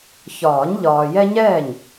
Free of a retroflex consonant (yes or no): yes